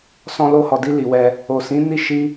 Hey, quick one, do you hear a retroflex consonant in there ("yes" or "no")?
no